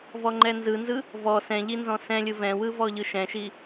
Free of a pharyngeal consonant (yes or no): yes